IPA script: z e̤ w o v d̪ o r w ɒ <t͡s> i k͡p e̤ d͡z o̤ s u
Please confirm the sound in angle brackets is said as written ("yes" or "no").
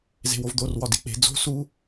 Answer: no